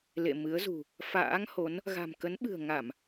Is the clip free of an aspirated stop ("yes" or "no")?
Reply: yes